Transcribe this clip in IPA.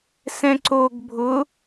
s ɛ̃ ǀ o ɡ bʱ ʊ

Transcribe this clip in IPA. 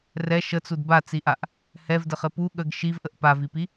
r ɛ ʃ ə t͡s u d b a t͡s i ʔ a ʔ | h ɛ v d ə χ ɘ p u ɠ ə ɡ ʃ i v ʔ ə ʔ p a v i p i

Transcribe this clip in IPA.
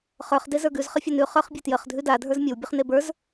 χ ə˞ χ d e z ə˞ ɡ ʉ z χ ə fʲ a n ʉ χ ə˞ χ bʲ e t j ə χ dʱ ʉ d a dʱ ə˞ z mʲ ə w bʲ ʉ χ n e b ə˞ z

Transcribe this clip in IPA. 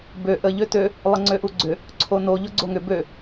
b ø ʔ ə ʎ ø t ø | lˠ ə ŋ͡ǀ ø ʔ u ɡ͡ǀ ʏ | ǀʰ o n o ʎ o ɡ͡ǀ o ŋ ʏ b ø

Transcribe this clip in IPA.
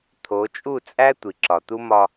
t̪ʰ o˨˦ t͡ʃʼ u˦˨ t͡sʼ æ˦ tʷ i˨ ǁ ɒ˨ t̪ u˦ m ɒ˧

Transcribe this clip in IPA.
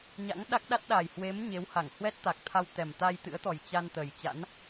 ɲ a̰˧˥ ŋ ɗ a˦˥ k̚ ɗ a˦˥ t̚ ɗ a˨˩ j h w e˨˦ m ɲ e˨˦ w h a˧˩ ŋ h w ɛ˦˥ t̚ t̪ a˨˩ k̚ t̪ʰ a˧ w t̪ ɛ˨˩ m t̪ a˧ j t̪ ɨ̰˧˥ ə̯ t̪ ɔ˨˩ j t͡ɕ a˧ n t̪ ə˨˩ j t͡ɕ a̰˧˥ n

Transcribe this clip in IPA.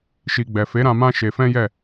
ʃ i˨ ɡ͡b ɛ˨ f e˨˦ ɾ ã˧ m ã˦ ʃ e˧ f ɛ̃˦ j ɛ˦˨

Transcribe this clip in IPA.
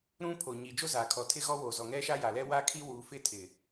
ɾ ũ˦ pʰ o˨ ɲ iː˨ d͡ʒ o˦ z aː˨ kʰ ɔ˨ tʰ ɪ˦ ɣ ɔ˦ w o˨ z ɔ˨ ŋ ɛ˦ ʃ a˦ j a˨ l ɛ˦ w a˦ kʰ i˦ w uː˨ f ɪ˦ tʰ ɪ˨

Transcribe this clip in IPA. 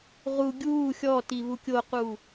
ʁ u ɡʲ uː xʲ ɔ t i β u kʲ o q uː

